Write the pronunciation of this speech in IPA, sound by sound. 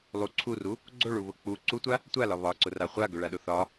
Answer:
lˠ u ǀʰ u r u | ɡ͡ǀ o ɭ u β ʊ k͡p u ǀ u tʷ a | tʷ a l ɒ β ɒ ǀ ʊ r a χʷ a ɡ ɵ ɭ a ɗ ʊ θ ɒ

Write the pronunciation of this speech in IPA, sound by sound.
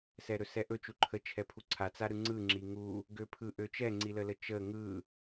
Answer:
s ɛ ɾ ɵ s ɛ ʔ ɵ t͡ʃ u ǃʰ ə t͡ʃʰ ɛ pʰ u ǀʰ a t͡s a ɾ ɯ ŋ͡ǀ ɯ ŋ͡ǁ i ŋ u | ɡ ø pʰ ɯ ʔ ø t͡ʃ ɛ ŋ͡ǀ i l ə l ə t͡ʃ ə ŋ ɯ

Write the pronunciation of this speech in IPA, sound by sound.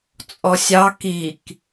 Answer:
t͡sʼ ɔ sʲ ɑ k i k

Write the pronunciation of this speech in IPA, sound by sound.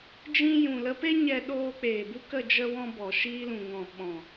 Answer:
d͡ʒ ĩ˦ j ũ˨ l ə˧ p e˦ ɲ ɛ˦ ɗ oː˦ k͡p eː˨ b u˦ k ə˦˨ d͡ʒ ə˦ w ɔ̃˦ b ɔ˨ ʃ iː˧ l ũ˨ ŋ ɔ̃˨ ɓ ɔ̃˨

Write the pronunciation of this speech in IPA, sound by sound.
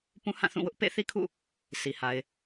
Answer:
p ũ˦ h ã˦˨ θ ũ˦˨ w ʊ˦ ʔ p ḛ˦˨ θ i˦ kʰ ṵ˦˨ | sʰ i˨ h a˨ ɪ̯

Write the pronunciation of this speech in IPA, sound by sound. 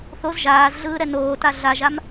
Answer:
θ o z ʒ aː z ɮ ɯː ɾ ɛ n oː t a ɮ a ʒ a m

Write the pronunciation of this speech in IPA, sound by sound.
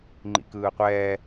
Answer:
ŋ͡ǃ ḭ k ɯː qʷ ɛː

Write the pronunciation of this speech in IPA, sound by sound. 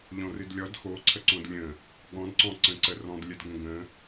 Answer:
ʎ ɔ̃ r ɨ d lʲ ɔ d x o ǀʰ ə ǀ õ d lʲ ə̃ | ɠ ɔ̃ d ǀ ɔ̃ ǀ ə̃ ǀ ə r ɔ̃ d lʲ ə d ɡ ə̃ ɡ ə̃

